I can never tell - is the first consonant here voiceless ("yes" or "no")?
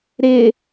no